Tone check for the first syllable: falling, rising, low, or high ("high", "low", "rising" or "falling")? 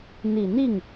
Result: low